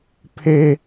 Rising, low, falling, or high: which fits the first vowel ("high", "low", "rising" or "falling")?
high